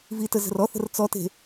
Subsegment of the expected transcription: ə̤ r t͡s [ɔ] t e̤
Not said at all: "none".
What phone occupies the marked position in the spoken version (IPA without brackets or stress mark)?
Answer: ɔ